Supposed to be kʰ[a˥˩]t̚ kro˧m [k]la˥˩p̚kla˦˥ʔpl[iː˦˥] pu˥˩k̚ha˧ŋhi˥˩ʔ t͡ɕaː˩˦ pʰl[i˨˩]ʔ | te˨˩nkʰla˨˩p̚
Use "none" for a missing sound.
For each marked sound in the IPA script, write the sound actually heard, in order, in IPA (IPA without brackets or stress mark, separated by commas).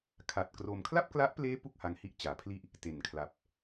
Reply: a˨˩, kʰ, eː˦˥, i˥˩